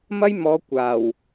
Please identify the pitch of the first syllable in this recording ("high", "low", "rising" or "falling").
high